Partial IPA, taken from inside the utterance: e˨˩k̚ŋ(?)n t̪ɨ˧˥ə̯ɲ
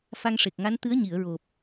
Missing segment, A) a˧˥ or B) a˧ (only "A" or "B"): A